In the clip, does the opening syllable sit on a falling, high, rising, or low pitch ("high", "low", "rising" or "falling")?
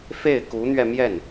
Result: falling